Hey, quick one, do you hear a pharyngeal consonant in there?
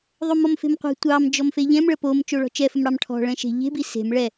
no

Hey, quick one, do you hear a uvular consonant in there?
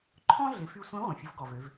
yes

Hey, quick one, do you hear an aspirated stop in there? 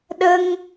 no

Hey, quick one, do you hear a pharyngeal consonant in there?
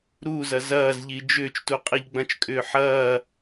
yes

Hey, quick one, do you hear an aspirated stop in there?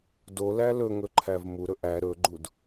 yes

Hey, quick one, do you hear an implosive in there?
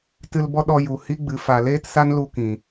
yes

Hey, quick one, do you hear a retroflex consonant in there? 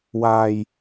no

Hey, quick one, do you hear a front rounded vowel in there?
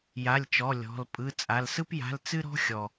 no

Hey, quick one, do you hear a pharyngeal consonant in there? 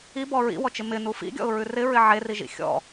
yes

